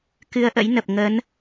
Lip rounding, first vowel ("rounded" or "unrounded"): unrounded